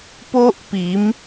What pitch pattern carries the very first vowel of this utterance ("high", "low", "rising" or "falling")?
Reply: high